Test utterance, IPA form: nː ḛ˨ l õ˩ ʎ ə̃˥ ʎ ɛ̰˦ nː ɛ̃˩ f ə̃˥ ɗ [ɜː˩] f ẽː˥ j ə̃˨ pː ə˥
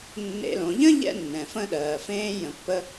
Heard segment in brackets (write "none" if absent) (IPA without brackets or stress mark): ɜː˩